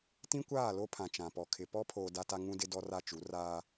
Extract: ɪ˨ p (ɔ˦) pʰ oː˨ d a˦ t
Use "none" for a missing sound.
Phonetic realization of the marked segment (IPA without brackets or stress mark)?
ɔ˦